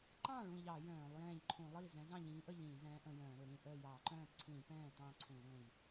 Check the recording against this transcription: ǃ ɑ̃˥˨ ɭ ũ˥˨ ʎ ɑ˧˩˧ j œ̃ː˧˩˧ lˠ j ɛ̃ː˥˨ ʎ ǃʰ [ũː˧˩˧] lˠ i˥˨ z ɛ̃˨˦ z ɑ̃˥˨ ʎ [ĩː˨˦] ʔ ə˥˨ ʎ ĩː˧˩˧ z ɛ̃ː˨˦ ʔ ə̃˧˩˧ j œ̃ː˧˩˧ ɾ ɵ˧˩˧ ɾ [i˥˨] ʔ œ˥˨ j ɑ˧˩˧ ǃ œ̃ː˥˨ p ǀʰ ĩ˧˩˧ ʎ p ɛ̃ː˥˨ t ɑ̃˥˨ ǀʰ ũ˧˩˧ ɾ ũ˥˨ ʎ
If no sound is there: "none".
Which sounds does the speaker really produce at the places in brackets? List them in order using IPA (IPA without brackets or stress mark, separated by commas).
ũ˧˩˧, ĩː˨˦, ĩ˥˨